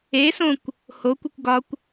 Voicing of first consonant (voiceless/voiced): voiceless